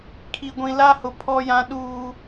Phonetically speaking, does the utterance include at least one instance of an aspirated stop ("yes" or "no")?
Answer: yes